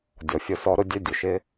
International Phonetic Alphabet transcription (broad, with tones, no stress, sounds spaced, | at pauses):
dʲ ɔ˨ fʲ ʊ˧ s ɔ˧ ɾ ʊ˦ dʲ ɛ˦ dʲ ʊ˨ ʃ ɪ˦